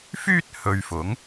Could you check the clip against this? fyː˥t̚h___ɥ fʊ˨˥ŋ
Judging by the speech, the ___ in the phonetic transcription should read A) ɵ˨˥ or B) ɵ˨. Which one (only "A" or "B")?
B